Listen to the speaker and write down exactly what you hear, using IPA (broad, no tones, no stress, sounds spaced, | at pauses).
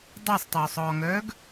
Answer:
dˤ əː sˤ tˤ øː sˤ ɔː ŋ œː ɡ